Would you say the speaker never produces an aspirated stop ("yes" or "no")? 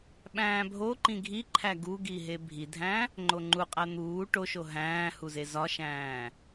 no